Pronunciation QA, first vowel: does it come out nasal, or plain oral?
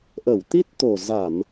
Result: oral